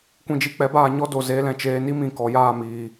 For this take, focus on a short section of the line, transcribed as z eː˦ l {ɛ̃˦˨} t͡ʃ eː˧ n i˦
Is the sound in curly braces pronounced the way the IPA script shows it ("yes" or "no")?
yes